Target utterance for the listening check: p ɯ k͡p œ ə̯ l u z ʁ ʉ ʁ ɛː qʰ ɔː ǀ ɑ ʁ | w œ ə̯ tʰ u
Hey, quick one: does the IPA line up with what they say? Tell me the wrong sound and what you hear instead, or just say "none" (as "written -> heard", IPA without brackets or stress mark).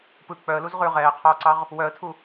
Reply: none